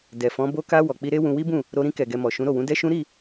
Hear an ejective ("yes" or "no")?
no